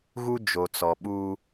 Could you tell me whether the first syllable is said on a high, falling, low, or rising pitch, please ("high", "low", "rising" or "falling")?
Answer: high